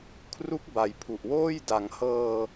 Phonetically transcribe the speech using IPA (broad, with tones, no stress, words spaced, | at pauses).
kʰru˦˥k̚ba˩˦jpʰu˨˩ʔwoː˥˩j da˩˦ŋhɤː˧